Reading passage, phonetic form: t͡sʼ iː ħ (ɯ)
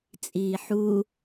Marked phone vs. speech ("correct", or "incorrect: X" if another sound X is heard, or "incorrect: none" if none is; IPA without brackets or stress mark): incorrect: u